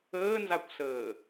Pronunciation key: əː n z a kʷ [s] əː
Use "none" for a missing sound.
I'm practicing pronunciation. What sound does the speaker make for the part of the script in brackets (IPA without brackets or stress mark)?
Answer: s